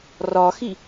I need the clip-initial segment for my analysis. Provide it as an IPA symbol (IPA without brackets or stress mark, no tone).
r